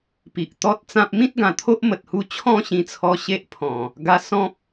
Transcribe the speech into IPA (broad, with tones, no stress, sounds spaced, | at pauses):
p i˨ ʔ t̪ ɔ˦ t̚ t͡s ã˦ p̚ m ĩ˦ t̚ ɡ ã˨˩ t̪ʰ o˦ ʔ m ə˨ t̚ h u˧ t͡ɕʰ ɔ̃˥˧ ɕ ĩ˧ t͡sʰ ɔ˧ ɕ e˦ ʔ pʰ ɔ̃˨˩ | ɡ a˧ s ɔ̃˦ p̚